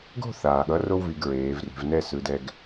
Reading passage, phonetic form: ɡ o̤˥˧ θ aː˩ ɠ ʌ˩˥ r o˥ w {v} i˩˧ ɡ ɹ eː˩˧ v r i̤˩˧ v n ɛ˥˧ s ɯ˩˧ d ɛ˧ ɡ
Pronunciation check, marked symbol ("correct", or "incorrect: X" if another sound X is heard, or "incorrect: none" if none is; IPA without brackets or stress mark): correct